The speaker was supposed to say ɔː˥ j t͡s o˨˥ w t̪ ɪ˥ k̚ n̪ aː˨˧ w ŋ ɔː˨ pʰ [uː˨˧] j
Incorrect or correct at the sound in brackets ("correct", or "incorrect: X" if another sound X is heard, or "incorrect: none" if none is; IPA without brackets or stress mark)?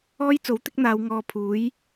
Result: incorrect: uː˨˥